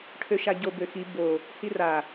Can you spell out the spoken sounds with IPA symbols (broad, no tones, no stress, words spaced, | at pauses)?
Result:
ʈʰøʃaɟo bøxi bo | hira